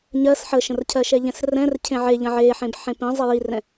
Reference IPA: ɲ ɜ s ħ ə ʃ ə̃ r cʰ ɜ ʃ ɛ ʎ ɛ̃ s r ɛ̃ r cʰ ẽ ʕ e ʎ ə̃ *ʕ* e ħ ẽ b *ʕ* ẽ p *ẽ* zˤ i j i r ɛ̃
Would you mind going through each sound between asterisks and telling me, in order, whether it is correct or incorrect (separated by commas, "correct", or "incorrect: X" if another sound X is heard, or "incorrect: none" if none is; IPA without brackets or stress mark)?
correct, incorrect: ħ, incorrect: ĩ